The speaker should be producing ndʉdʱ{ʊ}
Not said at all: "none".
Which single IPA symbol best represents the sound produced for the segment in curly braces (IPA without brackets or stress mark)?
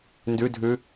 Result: ʉ